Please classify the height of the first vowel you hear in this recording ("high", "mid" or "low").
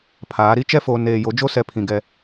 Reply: low